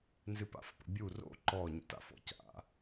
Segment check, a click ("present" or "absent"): present